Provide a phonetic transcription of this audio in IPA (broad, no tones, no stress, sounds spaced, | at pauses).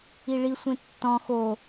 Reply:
i ɭ i sʷ ẽ tː ɔ̃ x o